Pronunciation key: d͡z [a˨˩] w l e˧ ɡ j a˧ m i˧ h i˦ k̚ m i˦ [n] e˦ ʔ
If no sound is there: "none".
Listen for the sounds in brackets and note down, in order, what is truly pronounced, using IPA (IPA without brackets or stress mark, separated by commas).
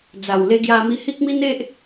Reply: a˨˩, n